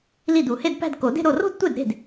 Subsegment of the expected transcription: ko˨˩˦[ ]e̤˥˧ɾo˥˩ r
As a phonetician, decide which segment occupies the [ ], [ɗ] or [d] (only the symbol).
d